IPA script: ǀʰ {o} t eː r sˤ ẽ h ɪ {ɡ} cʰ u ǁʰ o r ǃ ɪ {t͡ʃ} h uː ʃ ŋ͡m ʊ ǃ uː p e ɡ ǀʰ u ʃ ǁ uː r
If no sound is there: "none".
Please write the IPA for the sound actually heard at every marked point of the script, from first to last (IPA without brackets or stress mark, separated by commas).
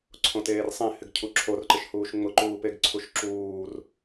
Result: õ, ɡ, ʃ